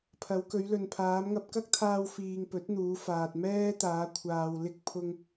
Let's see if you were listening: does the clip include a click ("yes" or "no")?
no